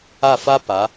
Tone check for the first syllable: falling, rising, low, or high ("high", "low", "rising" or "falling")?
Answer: falling